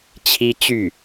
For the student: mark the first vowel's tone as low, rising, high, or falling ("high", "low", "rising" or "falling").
high